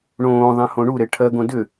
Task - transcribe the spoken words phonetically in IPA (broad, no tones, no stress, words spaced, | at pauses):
ɳõːðˤẽhõ ɳuɾe ʈʰɜɡõ dʏ